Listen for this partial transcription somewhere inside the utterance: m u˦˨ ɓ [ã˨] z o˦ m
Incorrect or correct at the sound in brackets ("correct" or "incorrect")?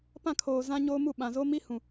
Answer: correct